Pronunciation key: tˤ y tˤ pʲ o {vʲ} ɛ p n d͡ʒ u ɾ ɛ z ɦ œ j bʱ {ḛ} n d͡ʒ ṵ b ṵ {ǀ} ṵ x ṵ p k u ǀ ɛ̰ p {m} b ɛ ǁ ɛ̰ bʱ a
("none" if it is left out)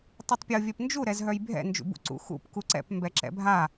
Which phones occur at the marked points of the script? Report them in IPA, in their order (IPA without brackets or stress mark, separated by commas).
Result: vʲ, ɛ̰, ǀ, m